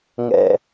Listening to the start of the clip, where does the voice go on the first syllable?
low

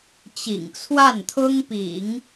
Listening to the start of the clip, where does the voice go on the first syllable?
low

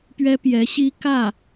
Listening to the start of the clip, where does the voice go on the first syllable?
high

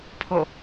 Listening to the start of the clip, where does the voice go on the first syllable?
falling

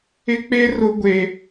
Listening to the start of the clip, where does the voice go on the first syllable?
high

